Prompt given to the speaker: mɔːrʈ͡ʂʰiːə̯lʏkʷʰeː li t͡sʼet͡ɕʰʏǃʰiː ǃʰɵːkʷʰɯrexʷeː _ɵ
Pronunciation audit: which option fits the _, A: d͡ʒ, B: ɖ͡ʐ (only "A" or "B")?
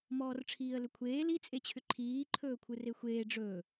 B